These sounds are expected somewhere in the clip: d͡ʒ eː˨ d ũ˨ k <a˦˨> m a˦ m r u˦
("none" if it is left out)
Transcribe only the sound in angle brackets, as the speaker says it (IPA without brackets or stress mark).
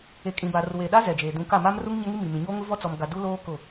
a˦˨